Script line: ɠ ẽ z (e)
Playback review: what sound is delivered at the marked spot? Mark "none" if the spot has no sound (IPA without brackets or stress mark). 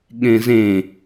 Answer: ẽ